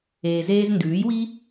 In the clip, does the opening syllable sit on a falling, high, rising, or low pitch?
low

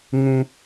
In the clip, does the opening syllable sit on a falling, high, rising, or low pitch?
low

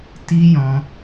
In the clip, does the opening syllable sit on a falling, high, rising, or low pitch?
high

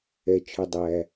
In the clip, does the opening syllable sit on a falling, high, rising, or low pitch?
low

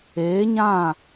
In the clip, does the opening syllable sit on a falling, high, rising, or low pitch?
rising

